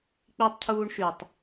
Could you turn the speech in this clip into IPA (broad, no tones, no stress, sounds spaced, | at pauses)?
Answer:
k͡p i tˤ cʰ uː ɳ ʃ y tˤ